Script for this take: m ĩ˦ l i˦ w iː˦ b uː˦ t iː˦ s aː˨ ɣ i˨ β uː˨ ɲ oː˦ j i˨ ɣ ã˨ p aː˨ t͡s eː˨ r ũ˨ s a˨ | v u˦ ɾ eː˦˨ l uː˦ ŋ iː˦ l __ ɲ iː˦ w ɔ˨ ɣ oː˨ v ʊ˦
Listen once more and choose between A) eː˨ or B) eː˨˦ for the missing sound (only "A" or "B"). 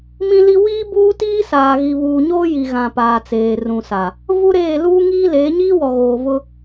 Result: B